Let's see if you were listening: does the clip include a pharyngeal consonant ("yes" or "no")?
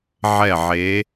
yes